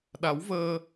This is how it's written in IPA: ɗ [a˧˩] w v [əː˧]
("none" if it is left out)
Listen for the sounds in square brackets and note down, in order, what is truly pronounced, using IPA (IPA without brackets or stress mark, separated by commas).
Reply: a˨˦, əː˧